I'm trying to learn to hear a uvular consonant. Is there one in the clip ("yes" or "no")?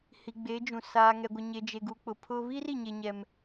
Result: no